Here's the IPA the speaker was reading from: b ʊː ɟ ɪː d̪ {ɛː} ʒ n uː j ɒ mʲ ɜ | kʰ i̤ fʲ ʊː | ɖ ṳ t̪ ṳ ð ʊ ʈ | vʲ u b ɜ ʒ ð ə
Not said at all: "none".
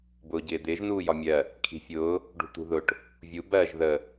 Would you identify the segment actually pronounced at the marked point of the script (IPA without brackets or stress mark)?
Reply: ɪː